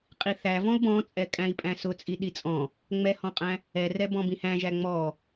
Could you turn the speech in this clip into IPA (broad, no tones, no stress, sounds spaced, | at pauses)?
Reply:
qʼ i θ æ v ɔ̃ u̯ b ɔ̃ t͡sʼ ɛ kʼ æ̃ i̯ pʼ æ̃ s ʊ t͡sʼ i ɗ i t͡sʼ ɔ̃ | ŋ͡m ɛ h ɔ̃ qʼ æ̃ | ɛ r ɛ b ɔ̃ b ĩ h æ̃ ʒ æ ŋ͡m ɔ